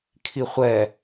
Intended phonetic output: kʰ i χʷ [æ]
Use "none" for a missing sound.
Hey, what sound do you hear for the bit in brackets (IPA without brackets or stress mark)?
ɛ